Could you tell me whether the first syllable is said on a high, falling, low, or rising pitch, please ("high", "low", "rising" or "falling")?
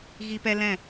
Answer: high